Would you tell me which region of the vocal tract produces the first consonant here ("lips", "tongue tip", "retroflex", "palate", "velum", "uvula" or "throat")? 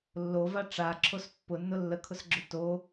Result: tongue tip